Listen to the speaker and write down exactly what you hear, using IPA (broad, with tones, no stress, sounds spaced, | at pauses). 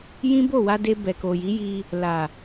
j ĩ˦ b o˦˨ w a˧ d e˧ b ɛ˨ k o˨ j i˨˦ j i˧ | l a˨